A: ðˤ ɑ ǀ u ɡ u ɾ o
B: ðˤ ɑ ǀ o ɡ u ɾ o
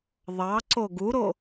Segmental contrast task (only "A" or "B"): B